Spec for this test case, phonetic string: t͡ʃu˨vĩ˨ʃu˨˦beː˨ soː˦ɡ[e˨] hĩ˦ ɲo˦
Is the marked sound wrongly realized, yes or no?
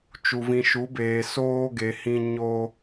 no